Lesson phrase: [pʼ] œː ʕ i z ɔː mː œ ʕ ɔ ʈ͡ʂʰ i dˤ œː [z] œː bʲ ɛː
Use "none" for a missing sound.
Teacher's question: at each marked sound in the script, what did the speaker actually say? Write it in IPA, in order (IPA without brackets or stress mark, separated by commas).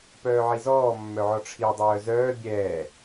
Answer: p, z